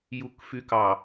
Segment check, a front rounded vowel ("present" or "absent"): present